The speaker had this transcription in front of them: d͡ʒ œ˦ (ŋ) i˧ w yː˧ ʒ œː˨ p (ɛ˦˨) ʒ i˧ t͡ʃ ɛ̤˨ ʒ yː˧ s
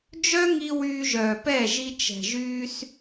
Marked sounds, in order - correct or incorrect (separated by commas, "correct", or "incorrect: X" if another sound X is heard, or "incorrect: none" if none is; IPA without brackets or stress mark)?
correct, correct